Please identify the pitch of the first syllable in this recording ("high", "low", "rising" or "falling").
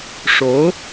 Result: rising